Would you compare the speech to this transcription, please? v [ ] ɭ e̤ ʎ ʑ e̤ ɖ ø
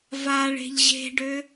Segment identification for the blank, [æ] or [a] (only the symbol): a